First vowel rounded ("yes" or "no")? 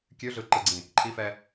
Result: yes